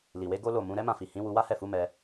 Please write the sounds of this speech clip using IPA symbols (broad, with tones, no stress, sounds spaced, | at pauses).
l i˨ w e˨˦ ɡ o˦ l o˦˨ m ũ˨˦ ɾ ɛ˦ m ã˦˨ f i˨ h ĩ˨˦ w u˧ w a˦ h ɛ˦˨ f u˨˦ m ɛ˧